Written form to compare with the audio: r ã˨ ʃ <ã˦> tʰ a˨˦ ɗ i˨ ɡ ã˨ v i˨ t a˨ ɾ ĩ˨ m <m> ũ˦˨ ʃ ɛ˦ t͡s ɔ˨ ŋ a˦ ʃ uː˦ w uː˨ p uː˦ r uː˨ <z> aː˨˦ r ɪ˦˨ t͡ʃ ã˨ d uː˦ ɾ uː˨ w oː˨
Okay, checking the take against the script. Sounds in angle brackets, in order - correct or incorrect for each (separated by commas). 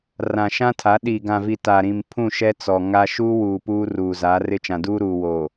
correct, incorrect, correct